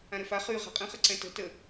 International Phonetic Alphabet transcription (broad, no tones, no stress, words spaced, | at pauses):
ãɾɘfa χy ʁa̤qʼə̃χɘ ǀɛ̃tə̤ tə